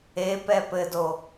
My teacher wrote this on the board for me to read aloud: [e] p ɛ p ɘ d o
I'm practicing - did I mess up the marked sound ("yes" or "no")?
no